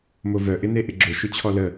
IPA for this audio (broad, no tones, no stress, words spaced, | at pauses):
movœ ʔɪneʔɪɡ͡ǁʊ ʃʏt͡ɕʰɔlə